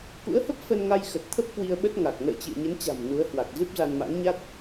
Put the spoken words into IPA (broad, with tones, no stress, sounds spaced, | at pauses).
k ṵ˧˥ ə̯ h ə˦˥ p̚ f ə˧ n ŋ a˧ j x ə˨˩ t̚ t̪ʰ ə˦˥ p̚ k w i˧ ə̯ ɓ ə˦˥ t̚ ŋ a˨˩ k̚ n ə̰ː˧˨ t͡ɕ ɨ̰˧˨ ə̯ ɲ ə˨˦ n t͡ɕ a̤˨˩ m n u˨˦ ə̯ h w a˨˩ k̚ z ɨ˦˥ p̚ z a˧ n m a̰˧˥ ŋ ɲ a˦˥ t̚